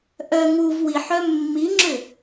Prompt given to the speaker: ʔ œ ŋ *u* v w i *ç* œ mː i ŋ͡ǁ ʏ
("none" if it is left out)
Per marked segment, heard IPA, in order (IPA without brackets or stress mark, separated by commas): u, ħ